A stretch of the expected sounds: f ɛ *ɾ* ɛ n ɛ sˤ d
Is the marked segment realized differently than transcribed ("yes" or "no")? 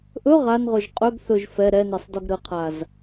no